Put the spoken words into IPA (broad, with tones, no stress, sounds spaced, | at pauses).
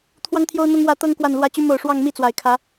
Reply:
t̪ʰ w ɑ˦ ŋ t̪ʰ j o˦ ʊ̯ n̪ ʊ˦ ŋ w ä˥˨ t̪ ɤ˦ ŋ k w a˨˩ n l w ä˨˦ t͡ɕ y˨˦ m o˨˩ ʊ̯ ʂ w ɑ˥˨ ŋ m i˥˨ t͡s w a˨˩ ɪ̯ kʰ ä˨˦